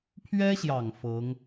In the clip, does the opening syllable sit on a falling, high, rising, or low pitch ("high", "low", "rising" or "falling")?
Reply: high